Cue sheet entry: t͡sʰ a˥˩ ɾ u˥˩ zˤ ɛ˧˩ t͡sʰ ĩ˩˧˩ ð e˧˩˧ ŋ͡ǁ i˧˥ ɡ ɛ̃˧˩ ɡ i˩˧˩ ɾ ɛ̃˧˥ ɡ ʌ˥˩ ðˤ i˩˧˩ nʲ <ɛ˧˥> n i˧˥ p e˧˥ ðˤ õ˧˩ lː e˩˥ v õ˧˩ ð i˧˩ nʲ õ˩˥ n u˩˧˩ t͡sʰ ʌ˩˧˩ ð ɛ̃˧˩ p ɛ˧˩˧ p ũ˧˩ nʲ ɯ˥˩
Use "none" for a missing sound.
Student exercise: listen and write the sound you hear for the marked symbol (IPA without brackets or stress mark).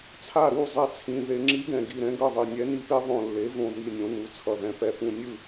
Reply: ɛ˧˥